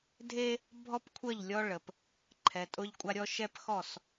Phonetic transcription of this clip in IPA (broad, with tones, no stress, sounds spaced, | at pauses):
dʱ e˦ | bʱ ɔ˦ p kʷʰ ə˦˨ ʎ lʲ ɔ˦ ɭ ə˨ p | ǃʰ ɛ˨ tʼ ʊ˦ ʎ kʷʼ a˦ ɾʲ ɔ˦ ʃ ɛ˦ p x ɔ˦˨ s